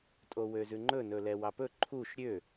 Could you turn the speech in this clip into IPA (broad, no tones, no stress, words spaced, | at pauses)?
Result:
tʼowøzʉŋ͡ǃɵ nɵlɛwɑpɵ ǃʰuʃ ɾʲø